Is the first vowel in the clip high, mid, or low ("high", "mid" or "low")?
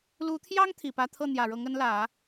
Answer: high